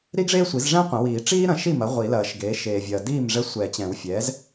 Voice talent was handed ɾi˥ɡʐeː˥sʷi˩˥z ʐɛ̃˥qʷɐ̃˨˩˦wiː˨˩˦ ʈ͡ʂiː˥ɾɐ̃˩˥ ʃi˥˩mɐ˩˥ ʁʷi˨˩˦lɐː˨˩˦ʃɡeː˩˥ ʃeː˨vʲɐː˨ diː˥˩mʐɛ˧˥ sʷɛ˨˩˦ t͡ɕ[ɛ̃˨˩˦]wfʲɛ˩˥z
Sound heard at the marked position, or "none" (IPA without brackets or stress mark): ɛ̃˨˩˦